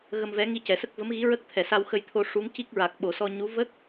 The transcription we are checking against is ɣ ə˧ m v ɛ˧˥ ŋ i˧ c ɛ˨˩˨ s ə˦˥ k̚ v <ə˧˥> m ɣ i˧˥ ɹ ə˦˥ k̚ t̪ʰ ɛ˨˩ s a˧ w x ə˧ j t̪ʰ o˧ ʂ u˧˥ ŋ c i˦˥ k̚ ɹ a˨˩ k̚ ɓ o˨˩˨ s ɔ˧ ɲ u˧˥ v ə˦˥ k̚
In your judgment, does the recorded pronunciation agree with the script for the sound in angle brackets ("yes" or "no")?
yes